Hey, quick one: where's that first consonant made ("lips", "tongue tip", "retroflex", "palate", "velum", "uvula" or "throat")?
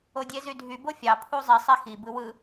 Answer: tongue tip